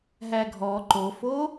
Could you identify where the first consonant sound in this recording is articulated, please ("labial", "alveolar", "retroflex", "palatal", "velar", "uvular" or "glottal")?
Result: glottal